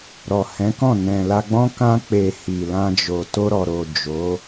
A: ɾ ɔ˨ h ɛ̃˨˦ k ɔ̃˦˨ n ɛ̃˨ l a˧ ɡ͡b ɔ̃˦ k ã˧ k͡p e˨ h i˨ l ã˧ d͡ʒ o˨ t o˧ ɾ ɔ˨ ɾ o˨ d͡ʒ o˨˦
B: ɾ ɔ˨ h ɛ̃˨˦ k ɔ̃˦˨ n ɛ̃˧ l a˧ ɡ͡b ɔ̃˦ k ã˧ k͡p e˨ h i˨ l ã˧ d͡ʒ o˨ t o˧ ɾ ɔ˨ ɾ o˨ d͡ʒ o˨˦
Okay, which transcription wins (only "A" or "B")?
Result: A